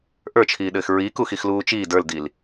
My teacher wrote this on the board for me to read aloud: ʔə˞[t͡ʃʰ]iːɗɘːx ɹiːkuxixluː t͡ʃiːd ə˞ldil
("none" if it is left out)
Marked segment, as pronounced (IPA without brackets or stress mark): t͡ʃʰ